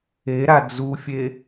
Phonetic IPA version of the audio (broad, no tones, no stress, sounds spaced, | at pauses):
e ɾ a d͡z u fʲ e